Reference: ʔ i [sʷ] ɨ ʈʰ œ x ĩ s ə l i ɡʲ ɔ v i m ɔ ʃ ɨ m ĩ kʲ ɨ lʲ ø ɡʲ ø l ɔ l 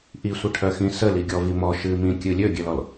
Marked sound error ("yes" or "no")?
no